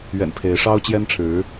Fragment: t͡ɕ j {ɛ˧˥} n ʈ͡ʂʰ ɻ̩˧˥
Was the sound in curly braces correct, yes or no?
no